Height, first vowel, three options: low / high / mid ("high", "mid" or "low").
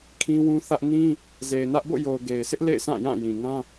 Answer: high